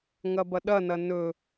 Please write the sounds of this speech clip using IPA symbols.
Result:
ŋɐbɐɗɐnɐ nɵ

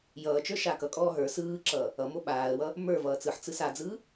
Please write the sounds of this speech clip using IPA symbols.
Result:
jʌːt͡ʃə˞ ʃakʌkʼɔː ɦə˞ sɯːǁʌː | ʌmo ɓaːə̯wʌ | mə˞vʌː t͡sɯħt͡sɯs ad͡zɯ

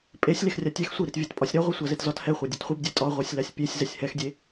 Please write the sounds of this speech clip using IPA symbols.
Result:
pʼesʲ lexrʲatʲɛx sʷiɾit vʲɛtpʼɒsʲɾɒ ʁʷɛsʷazetzɒt hɛχʷa dʲɛtχʷibdʲɛ tʼɒ ʁʷasʲlasʲpʲesʲ zɛsʲhɛxdʲe

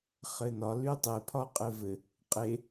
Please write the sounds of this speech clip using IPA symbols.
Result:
χɘnɒ lytˤe pʰɒqʼɘvɘ | qʼe

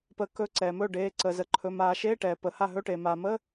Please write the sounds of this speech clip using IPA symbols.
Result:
pə˨˩˦ kɵː˧˥ǀɛː˩mɵː˥˩ɖeː˩˧˩ ǀəː˩ zə˩ǃʰɵ˩˧˩ maː˨˩˦ʃeː˧˥˧ʈɛː˩ pəː˩ha˥˩ ɦɵ˧˥˧ʈeː˩ maː˩məː˧˥˧

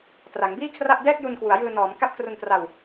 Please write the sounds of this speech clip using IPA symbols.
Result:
tra˩˦ŋbiː˥˩kʰra˥˩ʔ dɛː˥˩k̚ju˧nkwu˩˦a̯jɯː˧ nɔː˩˦mka˦˥p̚ kru˧ntra˧w

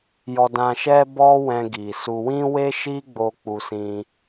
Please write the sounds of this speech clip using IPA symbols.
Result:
jɔ˧dã˧ʃɛ˦ bɔ˦wɛ̃˧ɡi˨su˧ wĩ˦we˦ʃi˦ ɡ͡bo˧ k͡pu˧ sĩ˧

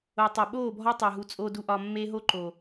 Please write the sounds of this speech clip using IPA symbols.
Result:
o˨tˤæ˨ ɓoː˦˨bʱɒ˦ tˤæ˨ɦu˨t͡sʼo˧du˧ ʔɒ˧mːe˦ ɦo˦ǃo˨

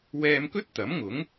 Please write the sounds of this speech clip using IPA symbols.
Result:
wɛː˧mkɵ˥t̚t̪ɐ˨˥mŋʊ˨˥ŋ

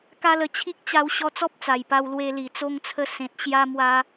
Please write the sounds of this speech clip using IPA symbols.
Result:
ka˦lə˧ t͡ɕʰi˦k̚t͡ɕa˧w ɕɔ˧t͡sɔ˦p̚ t͡sa˨˩jpa˧wlwe˧ li˨˩t͡so˧ŋt͡sʰə˧ sẽ˨t̚ ɕja˧ mwa˧

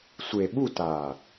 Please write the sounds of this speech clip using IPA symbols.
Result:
sʷe˨ ɓu˦˨taː˨

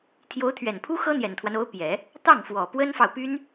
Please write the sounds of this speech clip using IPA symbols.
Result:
t̪ʰjo˧˥ʊ̯t̪ʰɥɛ˨˩npʰu˥ xɤ˥n̪jɛ˨˩nt̪ʰwa˦no˧˥ʊ̯ pjɛ˨˩˦ | t̪ɑ˥˩ŋfwɔ˨˩ pwə˥nfɑ˨ʊ̯py˥n

